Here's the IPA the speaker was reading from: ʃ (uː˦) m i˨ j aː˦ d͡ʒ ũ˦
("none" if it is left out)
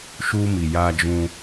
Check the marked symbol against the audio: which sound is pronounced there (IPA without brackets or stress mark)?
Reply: uː˦